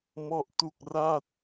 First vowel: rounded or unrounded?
rounded